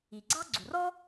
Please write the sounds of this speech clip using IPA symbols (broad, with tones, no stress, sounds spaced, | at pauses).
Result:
i˩ ɡ͡ǀ ɑ˥ ɡ͡ǀ u˩ r ɔ˥